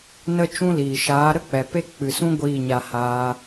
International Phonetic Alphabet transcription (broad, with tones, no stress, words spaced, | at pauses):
nə˦t͡ʃũ˦liː˨ ʃaː˨˦ ɾə˦k͡pɛ˨pe˦ k͡pɨ˨sũ˦ ɡʷiː˦˨ɲa˧ haː˦